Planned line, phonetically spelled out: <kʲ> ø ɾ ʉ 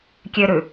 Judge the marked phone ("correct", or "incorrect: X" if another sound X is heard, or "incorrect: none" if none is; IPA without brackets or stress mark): correct